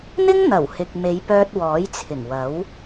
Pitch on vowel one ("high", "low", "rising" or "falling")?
high